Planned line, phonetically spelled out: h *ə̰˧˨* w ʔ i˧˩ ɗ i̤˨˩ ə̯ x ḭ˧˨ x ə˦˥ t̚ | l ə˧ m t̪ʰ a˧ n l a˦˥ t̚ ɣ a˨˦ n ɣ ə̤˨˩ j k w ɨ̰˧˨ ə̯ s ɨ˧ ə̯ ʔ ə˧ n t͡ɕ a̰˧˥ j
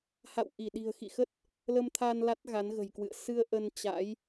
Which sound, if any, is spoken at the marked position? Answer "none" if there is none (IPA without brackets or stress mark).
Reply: a̰˧˨